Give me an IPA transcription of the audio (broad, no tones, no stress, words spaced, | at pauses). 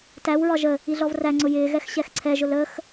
tæw ɹɒʒə | iɮɔvræŋ͡ǀʊ jɪːɣɛx ɕɛxǀʰɛʒʊl əx